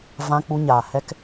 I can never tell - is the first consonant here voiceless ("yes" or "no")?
no